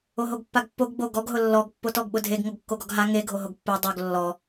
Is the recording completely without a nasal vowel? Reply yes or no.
yes